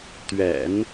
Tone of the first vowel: low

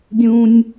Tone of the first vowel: high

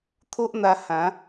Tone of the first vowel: high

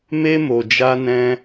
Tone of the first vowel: high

